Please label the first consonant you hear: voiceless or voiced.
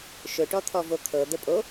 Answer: voiceless